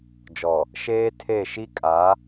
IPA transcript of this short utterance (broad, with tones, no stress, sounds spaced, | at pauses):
d͡ʒ ɔ˨ | ʃ eː˦ tʰ e˦˨ ʃ i˦ kʼ a˨˦